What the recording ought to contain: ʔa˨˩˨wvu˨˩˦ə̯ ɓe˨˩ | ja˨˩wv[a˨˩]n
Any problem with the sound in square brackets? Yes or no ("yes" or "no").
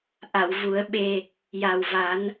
yes